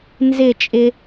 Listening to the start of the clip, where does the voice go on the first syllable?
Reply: falling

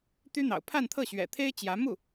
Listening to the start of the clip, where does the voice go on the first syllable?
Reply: high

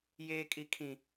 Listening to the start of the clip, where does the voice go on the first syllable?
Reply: high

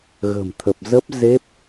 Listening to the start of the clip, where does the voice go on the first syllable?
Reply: low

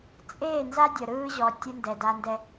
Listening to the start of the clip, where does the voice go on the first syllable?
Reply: falling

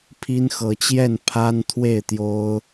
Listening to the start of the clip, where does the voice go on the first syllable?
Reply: high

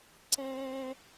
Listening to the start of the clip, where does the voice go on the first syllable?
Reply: high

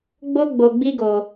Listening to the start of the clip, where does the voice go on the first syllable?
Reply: high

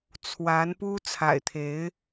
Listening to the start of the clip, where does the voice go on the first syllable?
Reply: rising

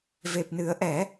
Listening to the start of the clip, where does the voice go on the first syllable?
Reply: low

